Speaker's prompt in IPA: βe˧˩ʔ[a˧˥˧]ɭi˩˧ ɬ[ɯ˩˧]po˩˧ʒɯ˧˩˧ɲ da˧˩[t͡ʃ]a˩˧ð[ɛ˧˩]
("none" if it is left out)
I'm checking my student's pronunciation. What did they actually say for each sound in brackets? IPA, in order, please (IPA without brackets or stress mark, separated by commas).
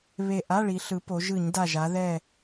a˧˥˧, ɯ˩˧, ʒ, ɛ˧˩